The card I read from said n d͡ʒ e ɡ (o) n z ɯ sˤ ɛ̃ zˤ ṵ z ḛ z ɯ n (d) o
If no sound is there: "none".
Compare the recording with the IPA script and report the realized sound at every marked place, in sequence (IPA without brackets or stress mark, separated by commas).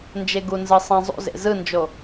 u, d͡ʒ